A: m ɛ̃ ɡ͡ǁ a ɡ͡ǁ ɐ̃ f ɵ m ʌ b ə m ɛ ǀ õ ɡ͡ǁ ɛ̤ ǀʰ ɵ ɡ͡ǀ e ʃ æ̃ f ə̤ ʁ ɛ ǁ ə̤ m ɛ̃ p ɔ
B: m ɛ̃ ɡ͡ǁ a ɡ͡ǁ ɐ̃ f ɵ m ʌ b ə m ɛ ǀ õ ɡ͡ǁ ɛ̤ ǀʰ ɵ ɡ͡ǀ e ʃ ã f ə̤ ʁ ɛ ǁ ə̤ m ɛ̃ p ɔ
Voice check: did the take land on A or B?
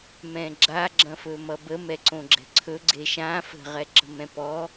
B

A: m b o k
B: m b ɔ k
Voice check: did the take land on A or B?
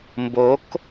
A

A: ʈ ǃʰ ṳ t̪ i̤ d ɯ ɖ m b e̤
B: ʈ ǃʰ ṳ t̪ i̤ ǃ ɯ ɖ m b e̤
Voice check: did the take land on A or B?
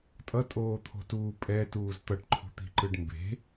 B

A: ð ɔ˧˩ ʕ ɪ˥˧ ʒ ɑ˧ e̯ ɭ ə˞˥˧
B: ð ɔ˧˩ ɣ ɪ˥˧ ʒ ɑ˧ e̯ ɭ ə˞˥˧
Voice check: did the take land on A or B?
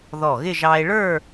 B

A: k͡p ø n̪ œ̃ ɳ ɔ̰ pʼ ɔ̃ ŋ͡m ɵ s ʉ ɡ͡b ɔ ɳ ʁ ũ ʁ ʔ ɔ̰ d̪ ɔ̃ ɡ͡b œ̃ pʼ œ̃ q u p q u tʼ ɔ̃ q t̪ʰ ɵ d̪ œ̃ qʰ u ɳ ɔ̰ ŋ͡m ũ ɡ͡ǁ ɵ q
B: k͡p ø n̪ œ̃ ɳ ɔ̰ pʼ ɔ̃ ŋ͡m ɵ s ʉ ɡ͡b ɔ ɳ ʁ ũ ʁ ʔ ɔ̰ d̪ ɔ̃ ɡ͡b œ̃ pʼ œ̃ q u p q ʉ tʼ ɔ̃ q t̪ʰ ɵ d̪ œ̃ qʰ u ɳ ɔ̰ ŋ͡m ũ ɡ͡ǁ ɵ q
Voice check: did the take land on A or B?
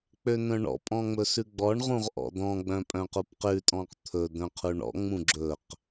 B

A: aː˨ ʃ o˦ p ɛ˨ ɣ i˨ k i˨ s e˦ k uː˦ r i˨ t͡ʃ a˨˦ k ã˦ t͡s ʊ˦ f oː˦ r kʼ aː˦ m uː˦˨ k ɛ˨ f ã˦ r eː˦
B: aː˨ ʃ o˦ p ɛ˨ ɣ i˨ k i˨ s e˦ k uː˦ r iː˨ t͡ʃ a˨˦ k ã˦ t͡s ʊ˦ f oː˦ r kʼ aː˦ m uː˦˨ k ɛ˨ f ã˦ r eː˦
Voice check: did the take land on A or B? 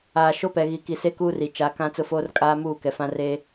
A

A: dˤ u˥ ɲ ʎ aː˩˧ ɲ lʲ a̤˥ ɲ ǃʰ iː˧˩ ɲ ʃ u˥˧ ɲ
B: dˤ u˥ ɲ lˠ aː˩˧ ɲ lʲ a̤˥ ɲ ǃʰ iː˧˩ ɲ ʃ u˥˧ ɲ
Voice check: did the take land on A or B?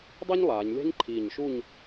B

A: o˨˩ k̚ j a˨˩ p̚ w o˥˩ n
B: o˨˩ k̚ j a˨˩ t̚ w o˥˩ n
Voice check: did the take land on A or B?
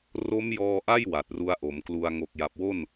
A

